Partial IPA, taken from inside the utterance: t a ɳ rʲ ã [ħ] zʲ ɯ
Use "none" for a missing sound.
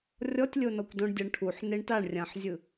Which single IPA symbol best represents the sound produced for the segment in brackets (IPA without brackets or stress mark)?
ħ